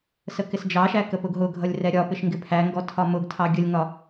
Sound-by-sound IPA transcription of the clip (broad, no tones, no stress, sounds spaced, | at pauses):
s ə k ɪ s d͡ʒ ɑ ʃ æ k ə p ʊ ɡ ɦ ʊ ɡʱ ʌ lʲ r ɛ ɾʲ ɒ p ɪ ʃ ŋ ɡ ɪ pʰ æ ŋ ɡ ɔ tʰ ɒ m ʊ ɡ tʰ ɑ ɡʲ ə lʲ ŋ ɒ